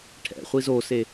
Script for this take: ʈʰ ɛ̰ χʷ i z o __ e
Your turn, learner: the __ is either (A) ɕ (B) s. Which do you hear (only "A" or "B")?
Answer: B